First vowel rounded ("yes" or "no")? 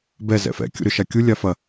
no